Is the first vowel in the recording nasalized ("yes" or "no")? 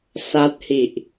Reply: no